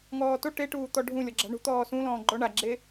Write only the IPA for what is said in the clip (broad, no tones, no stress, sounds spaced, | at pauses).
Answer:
ŋ ɔː t o ʈ e ʈ uː t̪ ɔ ɖʱ ũ lʲ ɔ ɡ͡ǁ a̤ ɳ ṳ t̪ ɔː s ũ l ɔ̃ː ɡ͡ǃ ɔ ɳ a ɡ͡ǁ e